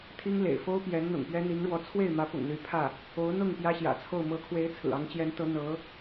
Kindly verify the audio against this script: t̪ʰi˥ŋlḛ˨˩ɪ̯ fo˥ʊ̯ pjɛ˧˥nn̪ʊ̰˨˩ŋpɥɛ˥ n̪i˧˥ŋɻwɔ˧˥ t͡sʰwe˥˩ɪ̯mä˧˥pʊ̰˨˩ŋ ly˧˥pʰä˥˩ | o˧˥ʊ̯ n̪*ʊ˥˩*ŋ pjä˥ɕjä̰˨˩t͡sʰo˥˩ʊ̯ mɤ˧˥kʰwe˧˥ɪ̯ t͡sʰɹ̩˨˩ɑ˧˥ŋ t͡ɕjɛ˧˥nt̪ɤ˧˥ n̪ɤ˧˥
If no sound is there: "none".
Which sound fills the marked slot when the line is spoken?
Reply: ʊ˥˩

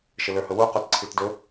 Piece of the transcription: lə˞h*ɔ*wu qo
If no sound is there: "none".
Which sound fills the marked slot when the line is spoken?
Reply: ɵ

